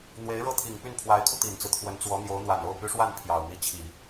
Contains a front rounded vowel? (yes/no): yes